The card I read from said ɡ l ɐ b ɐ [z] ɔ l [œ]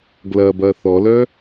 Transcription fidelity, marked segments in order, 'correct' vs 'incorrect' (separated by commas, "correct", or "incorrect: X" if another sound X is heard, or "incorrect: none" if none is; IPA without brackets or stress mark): incorrect: θ, correct